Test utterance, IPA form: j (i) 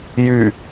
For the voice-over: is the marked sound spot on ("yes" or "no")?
no